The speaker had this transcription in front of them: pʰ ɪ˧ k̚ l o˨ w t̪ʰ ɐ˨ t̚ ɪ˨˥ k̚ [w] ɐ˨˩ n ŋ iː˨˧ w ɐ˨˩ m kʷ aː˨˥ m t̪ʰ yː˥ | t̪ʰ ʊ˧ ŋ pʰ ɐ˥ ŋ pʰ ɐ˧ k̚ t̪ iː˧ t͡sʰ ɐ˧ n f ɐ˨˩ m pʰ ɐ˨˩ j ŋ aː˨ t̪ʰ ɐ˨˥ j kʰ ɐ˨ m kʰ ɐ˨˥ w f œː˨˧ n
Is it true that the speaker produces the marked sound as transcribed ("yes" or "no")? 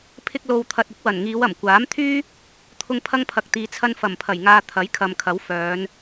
yes